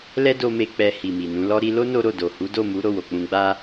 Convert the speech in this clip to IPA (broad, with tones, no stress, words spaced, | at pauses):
lɛ˦do˧me˧ k͡pɛ˧ hi˨mi˨nũ˨˦lɔ˦ ɾi˧lo˦ no˦ɾo˦˨ do˨hu˨˦do˦˨mu˨˦ ɾo˦˨wo˨k͡pũ˧ɡ͡ba˦